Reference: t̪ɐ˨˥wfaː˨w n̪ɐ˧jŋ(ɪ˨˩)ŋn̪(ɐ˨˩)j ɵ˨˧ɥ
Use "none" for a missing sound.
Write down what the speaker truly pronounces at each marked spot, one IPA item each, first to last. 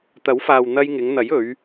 ɪ˨˧, ɐ˨˥

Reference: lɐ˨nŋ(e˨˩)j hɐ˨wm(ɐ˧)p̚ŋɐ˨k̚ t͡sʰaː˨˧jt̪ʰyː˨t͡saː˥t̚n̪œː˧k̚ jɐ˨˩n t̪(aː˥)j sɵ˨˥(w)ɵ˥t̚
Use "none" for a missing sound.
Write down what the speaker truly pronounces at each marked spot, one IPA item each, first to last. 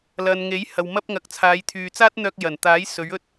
e˨˥, ɐ˥, aː˨˥, ɥ

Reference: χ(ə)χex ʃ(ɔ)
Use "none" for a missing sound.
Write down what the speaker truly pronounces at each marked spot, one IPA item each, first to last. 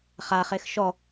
a, ɔ

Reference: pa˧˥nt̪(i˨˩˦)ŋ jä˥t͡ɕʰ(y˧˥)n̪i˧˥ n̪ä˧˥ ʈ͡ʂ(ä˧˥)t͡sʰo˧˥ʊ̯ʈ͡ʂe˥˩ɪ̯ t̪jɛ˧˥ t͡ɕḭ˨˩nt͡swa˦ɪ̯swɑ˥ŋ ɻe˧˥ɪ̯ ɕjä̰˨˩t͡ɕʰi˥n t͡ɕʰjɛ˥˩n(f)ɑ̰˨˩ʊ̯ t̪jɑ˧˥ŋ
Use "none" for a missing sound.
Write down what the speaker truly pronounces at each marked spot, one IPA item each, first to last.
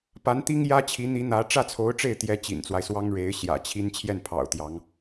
i˥, i˧˥, ä˥˩, pʰ

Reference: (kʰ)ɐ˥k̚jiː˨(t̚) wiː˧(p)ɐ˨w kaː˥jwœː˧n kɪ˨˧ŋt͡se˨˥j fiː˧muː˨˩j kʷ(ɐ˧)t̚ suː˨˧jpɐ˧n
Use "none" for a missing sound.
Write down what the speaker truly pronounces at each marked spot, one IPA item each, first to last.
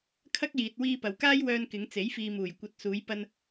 kʰ, t̚, p, ɐ˨˥

